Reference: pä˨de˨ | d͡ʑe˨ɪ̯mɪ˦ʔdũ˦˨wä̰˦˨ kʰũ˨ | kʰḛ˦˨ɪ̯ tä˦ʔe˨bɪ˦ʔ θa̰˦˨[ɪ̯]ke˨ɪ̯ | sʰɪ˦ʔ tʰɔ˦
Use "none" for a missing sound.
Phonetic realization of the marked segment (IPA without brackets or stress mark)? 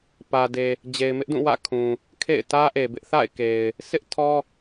ɪ̯